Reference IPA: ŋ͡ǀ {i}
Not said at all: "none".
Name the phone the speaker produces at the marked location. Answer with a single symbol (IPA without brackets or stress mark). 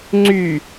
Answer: y